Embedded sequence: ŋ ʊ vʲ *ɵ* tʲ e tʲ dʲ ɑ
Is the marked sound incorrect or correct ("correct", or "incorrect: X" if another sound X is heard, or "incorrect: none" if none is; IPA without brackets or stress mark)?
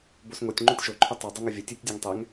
incorrect: ə